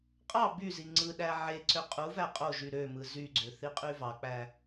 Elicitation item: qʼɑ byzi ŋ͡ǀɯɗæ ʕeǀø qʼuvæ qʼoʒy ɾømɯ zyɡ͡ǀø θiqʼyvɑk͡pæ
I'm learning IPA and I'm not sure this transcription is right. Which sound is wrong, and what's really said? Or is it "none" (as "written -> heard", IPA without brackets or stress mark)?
none